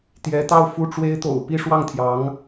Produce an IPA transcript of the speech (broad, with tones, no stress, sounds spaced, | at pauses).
t̪ j ɛ˧˥ t̪ ɑ˥˧ ʊ̯ f u˥˩ ʈ͡ʂ w e˥ ɪ̯ t̪ o̰˨˩ ʊ̯ p i˥˧ ʂ w ɑ˥˩ ŋ t̪ʰ j ɑ˧˥ ŋ